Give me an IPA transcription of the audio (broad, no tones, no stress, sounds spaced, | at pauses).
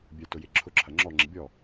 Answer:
bʲ œ t ʊ j ɪ ǁʰ ʊ ǁʰ ɐ ŋ͡ǁ ɔ ŋ͡ǁ ɪ bʲ ɔ